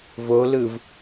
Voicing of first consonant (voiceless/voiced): voiced